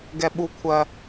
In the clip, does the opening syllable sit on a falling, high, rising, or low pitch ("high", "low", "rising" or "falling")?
high